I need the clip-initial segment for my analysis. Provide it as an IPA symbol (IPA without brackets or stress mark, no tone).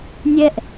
nʲ